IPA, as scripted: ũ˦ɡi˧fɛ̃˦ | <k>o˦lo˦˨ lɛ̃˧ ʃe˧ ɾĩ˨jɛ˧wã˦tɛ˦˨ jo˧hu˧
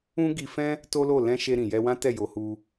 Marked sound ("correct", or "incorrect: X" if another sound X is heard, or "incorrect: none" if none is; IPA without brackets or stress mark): incorrect: t